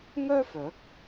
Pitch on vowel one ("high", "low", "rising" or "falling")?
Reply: high